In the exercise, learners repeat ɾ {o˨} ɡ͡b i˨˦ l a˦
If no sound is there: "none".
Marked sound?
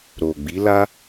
o˨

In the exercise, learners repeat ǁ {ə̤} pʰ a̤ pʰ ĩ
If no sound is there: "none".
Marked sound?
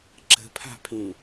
ə̤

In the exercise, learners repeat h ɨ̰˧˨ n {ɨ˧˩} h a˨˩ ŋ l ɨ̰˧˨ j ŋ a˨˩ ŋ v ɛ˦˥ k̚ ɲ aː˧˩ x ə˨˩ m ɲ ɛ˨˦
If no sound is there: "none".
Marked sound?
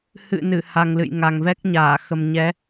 ɨ˧˩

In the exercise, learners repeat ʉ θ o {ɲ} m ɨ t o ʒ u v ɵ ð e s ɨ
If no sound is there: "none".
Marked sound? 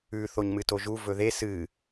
ɲ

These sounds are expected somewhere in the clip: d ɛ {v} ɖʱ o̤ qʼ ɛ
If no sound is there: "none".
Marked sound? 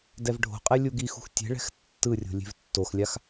v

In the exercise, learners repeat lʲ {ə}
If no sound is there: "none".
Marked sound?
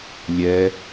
ɛ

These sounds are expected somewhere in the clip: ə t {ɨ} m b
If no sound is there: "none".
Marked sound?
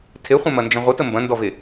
ə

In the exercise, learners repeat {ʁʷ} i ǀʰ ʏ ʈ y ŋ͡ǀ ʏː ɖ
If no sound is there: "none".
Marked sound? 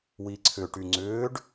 w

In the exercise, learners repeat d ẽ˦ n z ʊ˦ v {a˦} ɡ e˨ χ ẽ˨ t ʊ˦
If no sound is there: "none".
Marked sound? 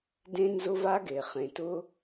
a˦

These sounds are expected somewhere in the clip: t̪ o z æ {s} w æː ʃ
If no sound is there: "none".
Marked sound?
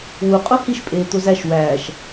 ʃ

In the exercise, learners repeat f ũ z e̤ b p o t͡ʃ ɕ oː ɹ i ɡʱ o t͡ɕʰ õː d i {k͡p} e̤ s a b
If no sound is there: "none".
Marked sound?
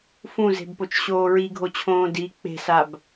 k͡p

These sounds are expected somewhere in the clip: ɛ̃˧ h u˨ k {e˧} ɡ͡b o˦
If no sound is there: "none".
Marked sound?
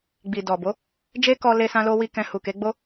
e˨˦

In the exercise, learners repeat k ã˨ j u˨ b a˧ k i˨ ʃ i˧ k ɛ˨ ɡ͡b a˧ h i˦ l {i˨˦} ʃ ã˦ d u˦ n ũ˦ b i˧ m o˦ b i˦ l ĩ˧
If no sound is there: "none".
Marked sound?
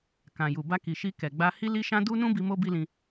i˦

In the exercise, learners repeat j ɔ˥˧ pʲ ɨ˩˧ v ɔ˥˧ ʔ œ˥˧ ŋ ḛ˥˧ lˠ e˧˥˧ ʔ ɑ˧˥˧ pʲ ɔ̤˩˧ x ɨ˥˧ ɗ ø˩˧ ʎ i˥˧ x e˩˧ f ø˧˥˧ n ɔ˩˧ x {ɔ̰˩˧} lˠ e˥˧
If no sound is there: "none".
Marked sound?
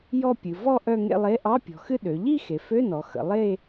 ə̰˩˧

